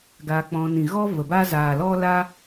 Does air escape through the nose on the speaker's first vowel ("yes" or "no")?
no